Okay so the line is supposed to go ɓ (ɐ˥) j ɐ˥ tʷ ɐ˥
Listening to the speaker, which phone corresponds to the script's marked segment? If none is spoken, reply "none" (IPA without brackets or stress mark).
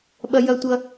ɐ˥